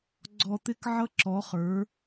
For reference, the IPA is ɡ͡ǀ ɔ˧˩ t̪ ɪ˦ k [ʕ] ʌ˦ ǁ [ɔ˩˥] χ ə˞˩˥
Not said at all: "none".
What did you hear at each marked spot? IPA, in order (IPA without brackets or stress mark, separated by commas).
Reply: ʕ, ɔ˩˥